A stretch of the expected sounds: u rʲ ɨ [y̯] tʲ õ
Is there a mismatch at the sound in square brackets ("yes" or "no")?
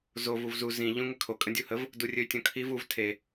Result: no